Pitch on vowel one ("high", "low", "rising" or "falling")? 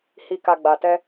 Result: low